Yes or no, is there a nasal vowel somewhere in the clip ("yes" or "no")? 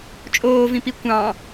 yes